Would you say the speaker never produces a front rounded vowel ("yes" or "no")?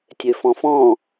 no